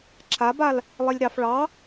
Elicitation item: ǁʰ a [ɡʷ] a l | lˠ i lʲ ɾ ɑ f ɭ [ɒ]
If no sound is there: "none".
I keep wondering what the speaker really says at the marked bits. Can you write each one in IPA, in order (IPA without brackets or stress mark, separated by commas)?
b, ɑ